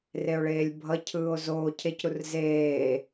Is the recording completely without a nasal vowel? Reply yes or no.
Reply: yes